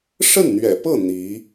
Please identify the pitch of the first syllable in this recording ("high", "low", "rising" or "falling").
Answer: falling